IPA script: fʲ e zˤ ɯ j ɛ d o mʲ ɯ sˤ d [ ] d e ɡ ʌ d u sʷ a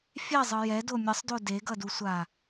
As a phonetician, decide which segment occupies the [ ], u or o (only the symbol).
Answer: o